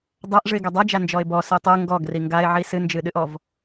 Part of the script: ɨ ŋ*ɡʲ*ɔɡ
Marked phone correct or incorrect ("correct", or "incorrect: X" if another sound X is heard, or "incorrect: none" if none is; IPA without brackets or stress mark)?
incorrect: ɡ